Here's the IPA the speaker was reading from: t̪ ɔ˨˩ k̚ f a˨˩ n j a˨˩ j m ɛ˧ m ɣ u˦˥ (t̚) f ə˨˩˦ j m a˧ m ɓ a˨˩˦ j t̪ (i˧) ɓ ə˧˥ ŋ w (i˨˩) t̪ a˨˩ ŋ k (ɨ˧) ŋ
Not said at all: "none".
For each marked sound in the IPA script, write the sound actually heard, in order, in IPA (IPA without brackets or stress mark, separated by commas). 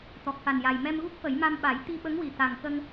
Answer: k̚, i˧, i˨˩, ə˧